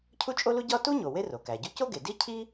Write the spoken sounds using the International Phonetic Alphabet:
cʰu˥t͡ʃʼo˥lu˥ ɟɒ˥ tu˥ɲo˩ we˥ro˩kæ˩ɟu˥ co˥ɡe˩ di˥cʰi˥

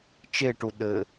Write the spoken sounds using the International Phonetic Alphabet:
t͡ʃeʈu ɗɘ

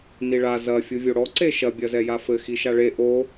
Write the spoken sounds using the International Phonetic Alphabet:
niɭa zɐ fʲuvʲoɽɔ ǀeʃɐ bʲɐzɛjafɘ xiʃaɭe ʔo

